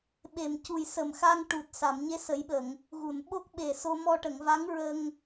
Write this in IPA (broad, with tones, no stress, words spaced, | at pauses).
ɓe˨˩m cu˨˩jsə˨˩mxa˧ŋ ʈu˨˩t̚ sa˨˩˨mɲe˧˥sə˨˩˦jɓə˨˩˨ŋ | ɣu˨˩˨nɓo˦˥k̚ ɓe˨˩so˧ mɔ˧ʈə˨˩˨ŋva˧˥ŋ ɹə˧ŋ